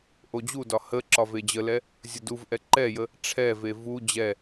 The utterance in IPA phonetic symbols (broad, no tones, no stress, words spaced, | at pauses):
ʔod͡ʑudɒ hə ǁɒved͡ʑəlɛ | zʲəduvʔɛ ǃɛjə | ʈ͡ʂʰɛve vu d͡ʑɛ